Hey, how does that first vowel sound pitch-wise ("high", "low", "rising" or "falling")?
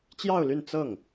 falling